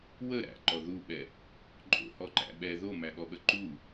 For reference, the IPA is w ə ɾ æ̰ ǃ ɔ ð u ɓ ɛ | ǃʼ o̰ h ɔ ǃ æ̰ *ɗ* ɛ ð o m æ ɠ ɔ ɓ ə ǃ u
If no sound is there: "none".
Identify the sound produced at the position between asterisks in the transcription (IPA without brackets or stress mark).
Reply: ɓ